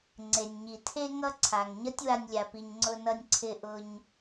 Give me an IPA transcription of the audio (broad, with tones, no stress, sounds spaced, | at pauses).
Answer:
ŋ͡ǀ e˩ nʲ ɲ i˩ tʰ e˥ ŋ ʌ˥ ǀʰ a˩ ŋ ɲ ʌ˦ tʲ w a˨ nʲ lʲ a˩ p i˩ ɲ ŋ͡ǀ ʊ˨ n ʌ˨ nʲ ǀʰ ɪ˨ ʔ ʊ˨ ɲ